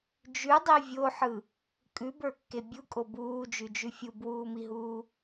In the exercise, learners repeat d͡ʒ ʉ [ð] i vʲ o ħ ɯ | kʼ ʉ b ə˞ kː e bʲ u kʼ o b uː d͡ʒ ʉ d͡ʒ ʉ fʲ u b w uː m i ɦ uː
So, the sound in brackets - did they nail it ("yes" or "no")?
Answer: no